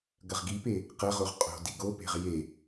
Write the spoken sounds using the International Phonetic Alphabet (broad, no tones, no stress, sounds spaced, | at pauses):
ɡ ɐ ʁ ɡ i p e | q ɐ ʁ o ʁ qʼ o̤ d i ɡ o p e̤ ʁ j e